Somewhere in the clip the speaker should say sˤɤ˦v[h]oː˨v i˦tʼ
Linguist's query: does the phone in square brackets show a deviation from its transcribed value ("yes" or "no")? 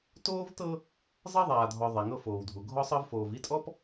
yes